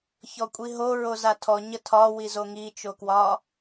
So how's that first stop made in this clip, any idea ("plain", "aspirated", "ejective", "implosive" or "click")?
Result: ejective